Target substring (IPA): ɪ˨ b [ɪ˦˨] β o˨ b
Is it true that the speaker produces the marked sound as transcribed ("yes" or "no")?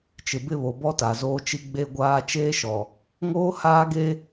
yes